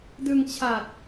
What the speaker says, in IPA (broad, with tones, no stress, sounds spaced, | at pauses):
d ɯ˧ ŋ t͡ɕʰ a˨˩ t̚